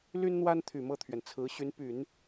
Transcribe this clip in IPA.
l y˥ n n̪ w a˥ n t̪ʰ y˨˩ m ɤ˥˩ t̪ʰ ɥ ɛ˩ n t͡sʰ ɹ̩˧˥ ɕ y˧˥ n p y˨˩˦ n

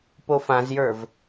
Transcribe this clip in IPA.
p o f ã z j ə˞ v

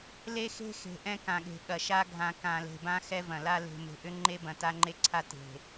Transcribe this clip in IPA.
l e˦ x e̤˦ x e̤˨ ʔ ɛ̃˦ k ã˨ ɠ e̤˨ ɠ ɐ˨ ʃ a˦ ɡʱ ã˨ k ã˨ l e̤˨ b ã˦ x ɛ˦ v ɐ̃˨ l a˦ l e̤˨ m e̤˨ ʔ ʏ˦ ŋ͡ǃ e˦ b ɐ̃˨ t a˦ ŋ͡ǃ e˦ ǀʰ a˦ t e̤˨

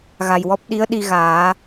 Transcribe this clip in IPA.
ɣ a˨˩ j w ɔ˦˥ p̚ ɗ i˧˥ ə̯ ɗ i˧ ɣ aː˨˩˦

